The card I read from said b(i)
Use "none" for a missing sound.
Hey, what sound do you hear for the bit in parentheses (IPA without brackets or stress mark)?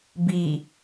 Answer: i